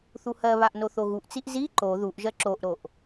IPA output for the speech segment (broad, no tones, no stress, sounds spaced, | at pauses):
θ u h ɜ β a ʔ n o θ o ɣ u ʔ t͡s i ʔ z i ǃ o ð u ʔ ʒ ɜ ǁ o ʔ ɾ o ʔ